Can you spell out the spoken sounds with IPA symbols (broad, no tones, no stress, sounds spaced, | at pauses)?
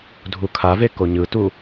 dʱ u kʰ a v e k o ɲ ɯ t u